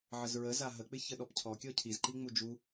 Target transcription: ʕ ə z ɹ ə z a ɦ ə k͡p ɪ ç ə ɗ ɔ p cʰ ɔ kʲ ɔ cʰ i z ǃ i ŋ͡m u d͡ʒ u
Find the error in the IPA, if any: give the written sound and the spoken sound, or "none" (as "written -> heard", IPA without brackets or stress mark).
none